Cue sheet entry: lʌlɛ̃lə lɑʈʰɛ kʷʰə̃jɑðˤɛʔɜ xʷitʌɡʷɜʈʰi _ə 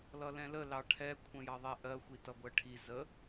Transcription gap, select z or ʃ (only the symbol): z